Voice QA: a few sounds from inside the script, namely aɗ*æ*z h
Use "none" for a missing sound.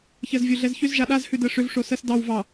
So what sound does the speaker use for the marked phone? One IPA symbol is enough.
a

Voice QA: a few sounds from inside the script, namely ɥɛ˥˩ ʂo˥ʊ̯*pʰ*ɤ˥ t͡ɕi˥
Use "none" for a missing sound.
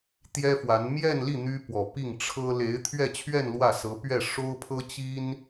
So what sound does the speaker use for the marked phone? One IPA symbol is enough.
pʰ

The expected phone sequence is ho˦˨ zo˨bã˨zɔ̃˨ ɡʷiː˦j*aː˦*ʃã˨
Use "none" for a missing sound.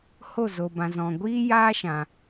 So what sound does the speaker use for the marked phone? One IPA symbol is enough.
aː˦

